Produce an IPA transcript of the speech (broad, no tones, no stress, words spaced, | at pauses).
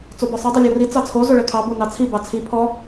t͡sobɔsˤi dˤulʲɔri t͡sɑt͡sʰo zoɭɛkʰɑ bonɑt͡sʰi bɑt͡sʰi pʰɔ